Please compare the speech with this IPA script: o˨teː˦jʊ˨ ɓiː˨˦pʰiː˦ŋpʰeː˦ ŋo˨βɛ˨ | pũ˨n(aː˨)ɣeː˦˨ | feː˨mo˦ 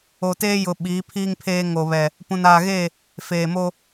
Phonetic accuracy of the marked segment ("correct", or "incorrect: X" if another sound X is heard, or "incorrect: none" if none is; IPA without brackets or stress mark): correct